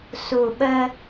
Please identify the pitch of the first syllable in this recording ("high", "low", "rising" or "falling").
low